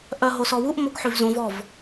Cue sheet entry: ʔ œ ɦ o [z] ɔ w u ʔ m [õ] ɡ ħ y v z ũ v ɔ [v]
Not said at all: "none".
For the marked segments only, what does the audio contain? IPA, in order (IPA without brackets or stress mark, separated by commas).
s, o, v